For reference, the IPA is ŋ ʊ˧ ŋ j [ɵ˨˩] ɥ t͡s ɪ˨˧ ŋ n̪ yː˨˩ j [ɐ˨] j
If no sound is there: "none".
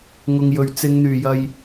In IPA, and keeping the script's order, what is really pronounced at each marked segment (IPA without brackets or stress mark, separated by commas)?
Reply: ɵ˨, ɐ˨